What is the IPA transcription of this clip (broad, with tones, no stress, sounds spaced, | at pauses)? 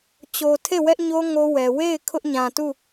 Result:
t͡ɕ o˨ tʰ e˦˨ w ɛ˦ ʔ ɲ o˦ ŋ o˦ w ɛ˨ w e˦˨ ɪ̯ kʰ ʊ˦ ʔ ɲ ã˨ t u˦˨